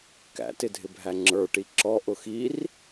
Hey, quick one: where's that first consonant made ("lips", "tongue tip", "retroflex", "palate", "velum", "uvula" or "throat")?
velum